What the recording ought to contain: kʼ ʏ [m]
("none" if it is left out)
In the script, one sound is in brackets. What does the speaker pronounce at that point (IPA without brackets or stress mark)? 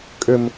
m